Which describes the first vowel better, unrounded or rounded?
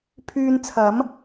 rounded